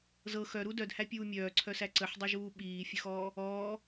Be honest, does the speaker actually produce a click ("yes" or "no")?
yes